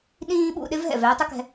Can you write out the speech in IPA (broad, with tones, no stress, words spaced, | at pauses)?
ɗĩː˥ɓṵ˧ ɗɪ˥vɦɛ̰˩v ɛː˧tˤɪ˥kɛ̤˧